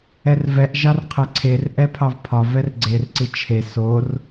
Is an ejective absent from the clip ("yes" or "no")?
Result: yes